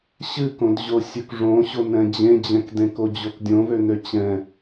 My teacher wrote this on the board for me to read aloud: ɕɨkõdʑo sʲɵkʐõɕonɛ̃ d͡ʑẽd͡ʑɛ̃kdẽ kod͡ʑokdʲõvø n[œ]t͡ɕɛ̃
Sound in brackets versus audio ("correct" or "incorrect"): incorrect